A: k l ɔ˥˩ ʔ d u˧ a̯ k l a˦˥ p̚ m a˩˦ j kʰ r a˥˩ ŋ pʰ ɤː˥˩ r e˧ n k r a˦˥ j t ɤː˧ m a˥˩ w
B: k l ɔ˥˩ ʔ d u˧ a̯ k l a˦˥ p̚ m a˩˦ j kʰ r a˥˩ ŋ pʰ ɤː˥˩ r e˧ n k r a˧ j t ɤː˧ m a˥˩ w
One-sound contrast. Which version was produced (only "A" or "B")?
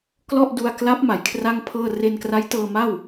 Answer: A